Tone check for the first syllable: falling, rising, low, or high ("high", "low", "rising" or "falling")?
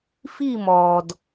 falling